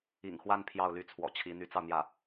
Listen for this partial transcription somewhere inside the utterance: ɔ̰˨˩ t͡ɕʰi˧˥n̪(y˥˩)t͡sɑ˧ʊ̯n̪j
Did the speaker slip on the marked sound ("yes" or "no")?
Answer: yes